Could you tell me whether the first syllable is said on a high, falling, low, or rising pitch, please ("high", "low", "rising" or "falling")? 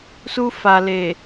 high